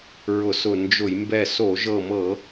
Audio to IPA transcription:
ɹʊ˧˩˧sʊ˧˩ nd͡ʒʊ˧˩˧j mbɛ˧˩so˧˩˧ʒɤ˧˩mɤ˧˩˧

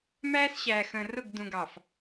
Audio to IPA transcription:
mæː˦sɕæː˨xə̃ː˨ rʊ˦˨ɡ dũ˨ɡɑ˨f

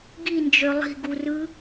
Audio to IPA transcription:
ɡind͡ʒø lˠi̤ɡurɯ

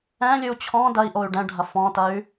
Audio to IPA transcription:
ɛ̃lʲɨu̯ t͡ɕʰɔ̃ dɐi̯ ʔoy̯ɖɛ̃ɖʱɐ fɔ̃tɐy̯

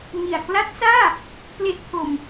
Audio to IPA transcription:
ŋi˨˩a̯kla˦˥t̚saː˥˩ | ple˦˥ʔpʰo˧m

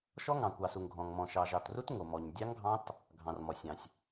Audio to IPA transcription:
ʃɔ˦˥ŋɑ̃˩kʷ ɑ˩su˩ŋɡʱɔ̃˩ŋmɔ̃˩ ʃɑ˩ʒɑ˩tru˦˥t ŋo˩ mɔ˩ɲ dʲɑ˦˥ŋɡʱɑ̃˦˥t | ɡʱɑ̃˩rmɔ˩sʲɑ̃˩sʲ

